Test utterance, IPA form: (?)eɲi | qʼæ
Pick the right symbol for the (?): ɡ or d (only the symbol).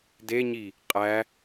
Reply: d